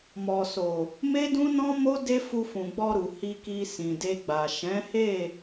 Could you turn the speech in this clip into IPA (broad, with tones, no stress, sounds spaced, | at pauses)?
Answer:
m ɔ˨ s o˨ | m e˦ d ũ˦ n ɔ̃˦ m o˦ d e˦ f u˧ f ũ˨ ɡ͡b ɔ˧ ɾ u˨ h i˧ k i˧ s ĩ˨ d e˧ ɡ͡b a˨ ʃ ɛ̃˨˦ h e˦˨